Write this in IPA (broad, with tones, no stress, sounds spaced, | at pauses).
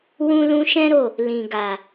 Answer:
w ũ˦ l ũ˦ ʃ ɛ̃˦ ɾ o˦˨ | l ĩ˨ ɡ a˨